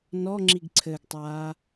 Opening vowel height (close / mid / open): mid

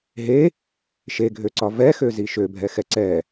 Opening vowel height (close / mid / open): mid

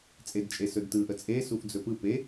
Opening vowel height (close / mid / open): mid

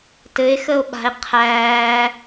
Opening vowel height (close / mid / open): mid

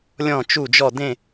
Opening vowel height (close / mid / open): mid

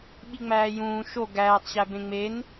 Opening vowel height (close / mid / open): close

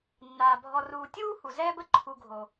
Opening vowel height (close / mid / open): open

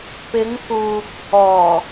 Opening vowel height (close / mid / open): close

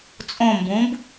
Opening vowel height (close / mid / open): mid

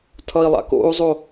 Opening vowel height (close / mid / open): mid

